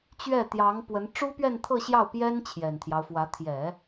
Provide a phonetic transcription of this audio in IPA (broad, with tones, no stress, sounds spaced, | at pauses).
t͡ɕ ɥ ɛ˥˩ t̪ j ɑ˧˥ ŋ p w ə˧˥ n ʈ͡ʂ u˥ p ɥ ɛ˥˧ n t̪ʰ ɤ˥˧ ɕ j ɑ˥˩ ʊ̯ p j ɛ˥ n t͡ɕʰ j ɛ˨˩ n t̪ʰ j ɑ˦ ʊ̯ f w ä˧˥ t̪ʰ j ɛ˨˩˦